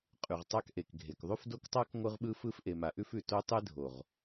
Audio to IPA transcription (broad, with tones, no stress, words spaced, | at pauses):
qʼʉ˨ʁtˤa˦kʔe˨k ɡʱe˨kðˤʉ˦f do˦ktˤa˦k ŋʷɯ˦ʁɓɯ˦fɯ˦f ʔe˨ma˨ʔʉ˦fʉ˨ to˦ tˤe˦dʱo˨ʁ